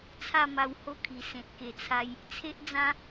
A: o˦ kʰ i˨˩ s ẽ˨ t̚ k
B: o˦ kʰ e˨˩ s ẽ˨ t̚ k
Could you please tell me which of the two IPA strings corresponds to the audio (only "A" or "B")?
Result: A